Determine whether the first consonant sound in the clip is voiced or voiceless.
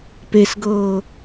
voiceless